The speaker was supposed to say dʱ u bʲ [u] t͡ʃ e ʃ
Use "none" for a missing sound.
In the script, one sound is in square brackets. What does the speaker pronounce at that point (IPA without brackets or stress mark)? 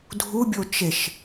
o